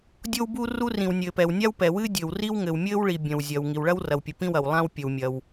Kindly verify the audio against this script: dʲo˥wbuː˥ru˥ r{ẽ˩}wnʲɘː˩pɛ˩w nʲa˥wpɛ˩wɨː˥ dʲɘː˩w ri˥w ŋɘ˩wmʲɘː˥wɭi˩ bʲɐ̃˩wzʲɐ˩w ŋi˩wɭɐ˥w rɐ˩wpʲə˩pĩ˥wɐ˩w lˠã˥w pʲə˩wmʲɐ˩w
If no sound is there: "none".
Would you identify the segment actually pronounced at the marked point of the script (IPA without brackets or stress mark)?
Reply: ĩ˩